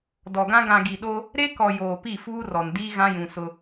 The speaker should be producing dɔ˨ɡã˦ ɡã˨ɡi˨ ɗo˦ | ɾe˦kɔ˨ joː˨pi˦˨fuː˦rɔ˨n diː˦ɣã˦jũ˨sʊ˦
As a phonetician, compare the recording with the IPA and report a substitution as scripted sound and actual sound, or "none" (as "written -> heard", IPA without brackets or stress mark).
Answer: none